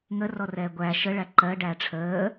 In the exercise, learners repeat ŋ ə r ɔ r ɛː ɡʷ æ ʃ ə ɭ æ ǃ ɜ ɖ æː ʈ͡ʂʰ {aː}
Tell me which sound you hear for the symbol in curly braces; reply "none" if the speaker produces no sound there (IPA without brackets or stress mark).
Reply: əː